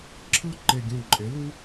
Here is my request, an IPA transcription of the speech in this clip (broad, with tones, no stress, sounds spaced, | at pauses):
ǁʰ ɯ˥ ǃ e˧˩ ɡʲ ũ˧˩ ǃʼ e˩˥ l u˥